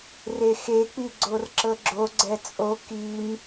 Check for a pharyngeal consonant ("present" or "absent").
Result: absent